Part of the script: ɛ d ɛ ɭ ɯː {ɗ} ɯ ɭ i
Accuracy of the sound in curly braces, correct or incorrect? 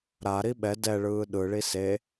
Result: correct